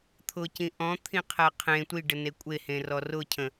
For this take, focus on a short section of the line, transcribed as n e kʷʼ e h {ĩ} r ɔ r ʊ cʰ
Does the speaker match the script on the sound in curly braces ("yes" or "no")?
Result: no